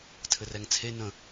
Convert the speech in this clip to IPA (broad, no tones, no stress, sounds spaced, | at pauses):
tʰ ɘ r ɛ ŋ t͡sʰ e n ə̃